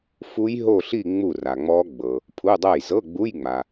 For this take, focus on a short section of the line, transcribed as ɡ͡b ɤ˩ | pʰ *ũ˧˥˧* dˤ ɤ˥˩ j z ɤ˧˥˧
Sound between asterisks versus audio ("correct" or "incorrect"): incorrect